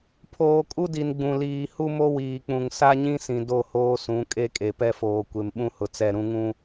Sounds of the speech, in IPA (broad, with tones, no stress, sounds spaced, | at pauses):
pʰ oː˨ kʼ u˦ d i˨ n ɡ͡b ũ˨ l iː˨ h u˦ m o˦ w iː˨ k͡p ũ˨ ŋ s a˦ ɲ ĩ˦ s ĩ˨ d o˦˨ h oː˦ s ũ˨˦ kʼ e˦ kʼ e˨ p ɛ˦ f oː˨ kʷ e˨ m ɓ ũ˦ h ʊ˨ t͡s ɛ˦˨ ɾ ũ˦ ŋ ũ˦